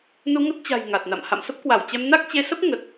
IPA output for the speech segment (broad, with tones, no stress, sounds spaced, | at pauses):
n u˧ ŋ ə˦˥ t̚ t͡ɕ a̤˨˩ j ŋ a˨˩ t̚ n a̰˧˨ m h a̰˧˨ m s ə˦˥ p̚ k w a˧˩ w t͡ɕ ɛ˧ m n a˦˥ k̚ t͡ɕ e˧ s ə˦˥ p̚ ŋ ə˨˩ t̚